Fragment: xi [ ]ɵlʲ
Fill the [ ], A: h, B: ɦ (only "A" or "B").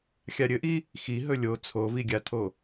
B